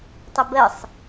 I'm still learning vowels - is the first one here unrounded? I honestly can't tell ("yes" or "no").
yes